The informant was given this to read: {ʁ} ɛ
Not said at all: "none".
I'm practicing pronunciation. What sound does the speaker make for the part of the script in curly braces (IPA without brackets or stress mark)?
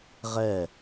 ʁ